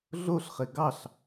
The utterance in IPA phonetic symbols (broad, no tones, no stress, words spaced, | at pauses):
ɮoɬχe ɡɑɬ